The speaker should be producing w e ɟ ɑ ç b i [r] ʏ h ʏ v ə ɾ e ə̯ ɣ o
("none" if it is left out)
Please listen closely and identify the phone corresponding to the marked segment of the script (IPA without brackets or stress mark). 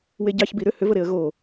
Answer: ɾ